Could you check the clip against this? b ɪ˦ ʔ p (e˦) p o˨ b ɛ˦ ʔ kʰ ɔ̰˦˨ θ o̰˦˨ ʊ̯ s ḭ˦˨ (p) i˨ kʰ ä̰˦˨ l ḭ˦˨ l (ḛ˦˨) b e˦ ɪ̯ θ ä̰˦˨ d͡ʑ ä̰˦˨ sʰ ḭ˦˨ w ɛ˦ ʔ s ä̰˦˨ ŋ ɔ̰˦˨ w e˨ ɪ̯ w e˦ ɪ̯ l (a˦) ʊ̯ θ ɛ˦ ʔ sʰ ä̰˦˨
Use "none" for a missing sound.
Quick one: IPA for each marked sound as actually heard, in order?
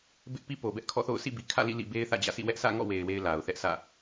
i˦, b, ḭ˦˨, a˨

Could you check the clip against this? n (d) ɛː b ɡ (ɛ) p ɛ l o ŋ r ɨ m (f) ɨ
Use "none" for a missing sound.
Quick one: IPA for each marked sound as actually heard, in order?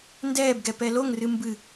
d, ɛ, b

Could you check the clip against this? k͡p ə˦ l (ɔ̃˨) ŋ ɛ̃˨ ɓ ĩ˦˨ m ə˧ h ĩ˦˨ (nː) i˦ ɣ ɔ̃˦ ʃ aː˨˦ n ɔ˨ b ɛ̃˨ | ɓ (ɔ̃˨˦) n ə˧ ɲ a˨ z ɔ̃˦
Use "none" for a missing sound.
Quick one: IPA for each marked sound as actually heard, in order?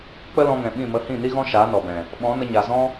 ɔ̃˧, n, ɔ̃˨˦

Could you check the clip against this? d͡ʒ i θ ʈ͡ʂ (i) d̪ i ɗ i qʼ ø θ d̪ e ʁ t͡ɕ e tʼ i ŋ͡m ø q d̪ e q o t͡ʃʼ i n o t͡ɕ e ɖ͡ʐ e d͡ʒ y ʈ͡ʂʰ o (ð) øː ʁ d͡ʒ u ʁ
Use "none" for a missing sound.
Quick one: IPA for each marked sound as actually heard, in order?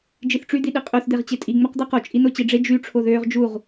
y, ð

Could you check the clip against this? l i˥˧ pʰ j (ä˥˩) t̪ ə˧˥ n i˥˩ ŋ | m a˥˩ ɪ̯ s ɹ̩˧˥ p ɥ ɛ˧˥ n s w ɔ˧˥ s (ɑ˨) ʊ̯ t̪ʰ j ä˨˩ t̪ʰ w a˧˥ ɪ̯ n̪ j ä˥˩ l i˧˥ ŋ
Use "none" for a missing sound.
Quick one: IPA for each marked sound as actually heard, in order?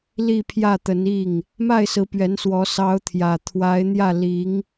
ä˥˩, ɑ˧˥

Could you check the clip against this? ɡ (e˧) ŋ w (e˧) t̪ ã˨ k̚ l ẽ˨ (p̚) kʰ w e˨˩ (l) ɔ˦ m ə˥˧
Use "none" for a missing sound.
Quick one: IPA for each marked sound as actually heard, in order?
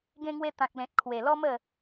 ẽ˧, e˧, t̚, l

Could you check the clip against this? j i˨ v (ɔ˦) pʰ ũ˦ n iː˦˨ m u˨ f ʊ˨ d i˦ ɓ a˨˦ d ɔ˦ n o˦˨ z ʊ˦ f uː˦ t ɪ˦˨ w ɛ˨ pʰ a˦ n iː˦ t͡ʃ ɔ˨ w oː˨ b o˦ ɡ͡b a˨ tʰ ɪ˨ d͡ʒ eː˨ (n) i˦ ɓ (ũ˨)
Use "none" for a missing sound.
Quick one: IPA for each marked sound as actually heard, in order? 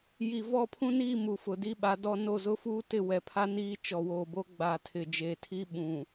ɔ˦˨, tʰ, ũ˨

